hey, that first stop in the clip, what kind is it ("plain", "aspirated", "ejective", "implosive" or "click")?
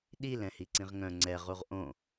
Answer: implosive